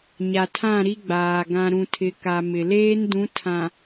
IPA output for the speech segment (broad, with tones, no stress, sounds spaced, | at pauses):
ɲ a˨ tʰ ã˦˨ ɾ i˦ ɡ͡b aː˨ ɡ ã˨ ɾ ũ˨ tʰ ɪ˨ k a˨ m ɪ˨ l eː˦ n d ũ˨˦ tʰ ã˨